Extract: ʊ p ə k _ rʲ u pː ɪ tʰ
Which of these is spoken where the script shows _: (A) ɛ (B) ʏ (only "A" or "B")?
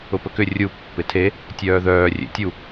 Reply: B